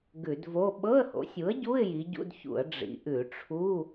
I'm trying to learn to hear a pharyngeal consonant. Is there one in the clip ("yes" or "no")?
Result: no